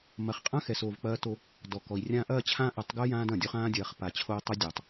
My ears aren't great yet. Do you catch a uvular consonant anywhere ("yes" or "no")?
yes